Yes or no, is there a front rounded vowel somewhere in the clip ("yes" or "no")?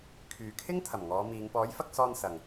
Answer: yes